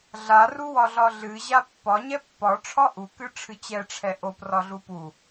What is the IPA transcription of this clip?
ɮaruwɒɮɒ ɮɨʑa pːɒ ɲɛpːɒ ʈ͡ʂʰɒʔukɨ ʈ͡ʂʰɨt͡ɕɛʈ͡ʂʰɛ ʔoprɒɮu pu

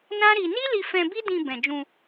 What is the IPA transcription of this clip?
nã˦ɾi˧ ni˦li˧fɛ̃˧ bi˦dĩ˧ bɛ̃˨d͡ʒũ˧

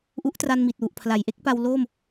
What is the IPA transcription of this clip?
ʔu˦˥ʔtra˧nmi˨˩t̚wu˨˩ʔ pʰla˩˦jʔe˦˥k̚pa˧w lo˥˩m

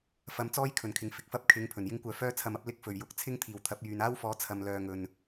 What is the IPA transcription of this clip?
fɐ˨˥mt͡sɔː˥jkʰɵ˨˩nkʰɪ˨˩ŋ fɪ˨k̚fɐ˥p̚kʰɪ˨˧ŋ pʰɵ˨˩njɪ˥ŋkʷœː˧ fœː˥t͡sʰɐ˧mɐ˥p̚ lɪ˧k̚fɵ˨˩ɥjʊ˨˥k̚ t͡sʰɪ˥ŋt̪ʰiː˨˩wt̪ʰɐ˨˥p̚jyː˨n aː˥wfɔː˨˥ t͡sʰɐ˨mlœː˨ŋɵ˨˩n

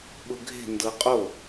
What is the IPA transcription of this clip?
ɓʊɡʱe̤ ndɤqʼo

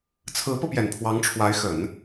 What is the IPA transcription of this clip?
t͡sʰɹ̩˧˥pɤ˧pjɛ˨˩n pʰwɑ˧˥ŋʈ͡ʂʰwa˧˥ɪ̯xə˨˩˦n

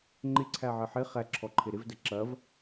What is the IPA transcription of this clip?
ŋ͡ǃɪǀʰæʕɪ ħɪ χæ ǁʰɔǃʰɪɾɪvdə ǁɐv

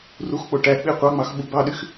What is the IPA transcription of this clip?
ruxk͡po ʈæk͡pi qʷɑŋ͡mɑx ɓubɑɗyx

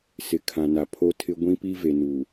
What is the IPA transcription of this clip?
sɪ˨kʰã˨na˨ pʰo˦tʰɪ˦ ɡʷĩ˦pi˦ ve˨nu˨

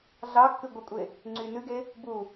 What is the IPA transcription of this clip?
ɮɑkːʉ ɡʷɪkʷʼe | ŋ͡ǀynʉɡe | bu

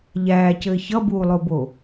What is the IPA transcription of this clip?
ʎæːcɘː çʌbuːlˠobo

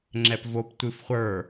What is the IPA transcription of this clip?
ŋ͡ǁɛpvop tʷɨfχʷə˞

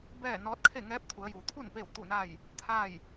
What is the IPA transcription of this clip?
bɛː˥˨nɔː˧˥t̚ kʰe˥˨ŋɛː˧˥p̚t̪ʰu˩˧ə̯juː˩ t̪ʰu˥˨n peː˥˨wt̪u˥˨na˥˨j | t̪ʰa˥˨j

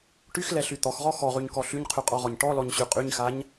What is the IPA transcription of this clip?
ʈyxlɛɬy t̪ɔxʁɔ xɔʁyɲkɔ ɬyɲqʰyqʼɔʁɔɲ ʈɔlɔɲɕy qʼyɲxaɲ

